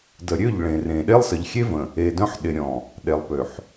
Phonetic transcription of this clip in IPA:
d ə˨ ɾʲ ø˦˨ ʎ ɭ ẽ˨ r ẽ˨ ɗ e˦ lˠ s ə˨ ʎ xʲ e˦ v ə̃˨ | e˨ d œ̃˦ ħ ɗ ɪ˨ ɾʲ ɔ̃˨ | ɗ e˨ lˠ p ø˨ ħ

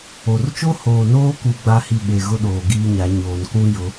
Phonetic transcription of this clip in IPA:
o˨ r t͡ʃ o˦ h oː˨ n oː˦ k u˦ ɡ͡b a˦ h i˦˨ ɓ e˨ ɣ ʊ˦ ɗ oː˨ ɡ iː˦ ɲ a˨˦ ɲ oː˨ n k ũ˦ j ʊ˨˦

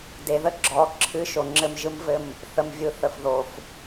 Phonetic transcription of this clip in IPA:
d e˨ ð ə˦ ɡ͡ǁ ɔ˨˦ ǁʰ ɨ˦˨ ʃ o˨ ŋ͡ǁ ɘ˦˨ m ʒ ɯ˦ m v ɘ˦˨ m | θ ə˨ m vʲ ɯ˨ θ ə˨ f ð o˨ f

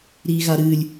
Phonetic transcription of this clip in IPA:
ɾ i ɣ a ɾ ɨ lʲ

